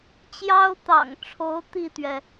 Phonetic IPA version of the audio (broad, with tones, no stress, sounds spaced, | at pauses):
t͡ɕ j ɑ˥ ʊ̯ t̪ ɑ̰˨˩ ŋ ʈ͡ʂʰ o˧˥ ʊ̯ t̪ i˥˩ t̪ ɥ ɛ˩